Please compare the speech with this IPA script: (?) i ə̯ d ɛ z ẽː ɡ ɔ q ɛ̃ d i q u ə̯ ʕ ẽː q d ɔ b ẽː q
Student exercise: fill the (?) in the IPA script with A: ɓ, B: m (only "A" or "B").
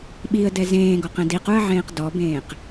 A